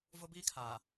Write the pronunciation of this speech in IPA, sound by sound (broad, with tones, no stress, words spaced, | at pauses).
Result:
vʊ˦biː˦kʰaː˨